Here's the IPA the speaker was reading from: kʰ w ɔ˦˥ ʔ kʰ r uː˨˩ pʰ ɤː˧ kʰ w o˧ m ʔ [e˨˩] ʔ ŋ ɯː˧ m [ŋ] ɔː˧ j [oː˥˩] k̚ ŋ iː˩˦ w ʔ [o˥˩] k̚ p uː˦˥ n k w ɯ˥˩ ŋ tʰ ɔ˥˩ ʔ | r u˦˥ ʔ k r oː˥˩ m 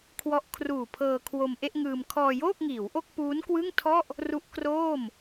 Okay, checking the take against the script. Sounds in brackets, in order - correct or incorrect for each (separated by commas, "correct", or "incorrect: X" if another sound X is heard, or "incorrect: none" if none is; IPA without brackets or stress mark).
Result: incorrect: e˥˩, incorrect: kʰ, correct, correct